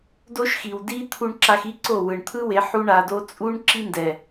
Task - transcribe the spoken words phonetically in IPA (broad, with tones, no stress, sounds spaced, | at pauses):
d o˦ ʃ x i˨ w d i˦ t̪ʰ u˧ ɳ ǁ a˧ x i˦ ǀ o˦˨ w ɯ˨ ɳ t̪ʰ ɯ˦ w e˨˦ ħ u˦ ɳ a˧ d o˦ t͡sʼ u˦ ɳ ǁ i˦ n d ɛ˨